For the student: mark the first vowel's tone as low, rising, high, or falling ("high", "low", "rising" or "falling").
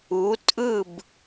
rising